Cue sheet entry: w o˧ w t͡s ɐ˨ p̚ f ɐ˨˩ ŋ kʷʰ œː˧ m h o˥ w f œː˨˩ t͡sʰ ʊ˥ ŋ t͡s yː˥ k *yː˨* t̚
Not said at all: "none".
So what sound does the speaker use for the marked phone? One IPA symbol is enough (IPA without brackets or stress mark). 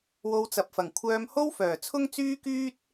yː˥